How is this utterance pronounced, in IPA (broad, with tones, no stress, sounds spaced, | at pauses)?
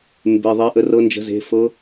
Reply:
m b e˩˧˩ ðˤ e˨˦ ʔ ə˨˦ r ɤ˨˦ n d͡ʒ ə̤˨˦ z e̤˩˧˩ f ɤ˨˦